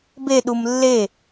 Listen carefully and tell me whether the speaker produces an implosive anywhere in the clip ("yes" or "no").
yes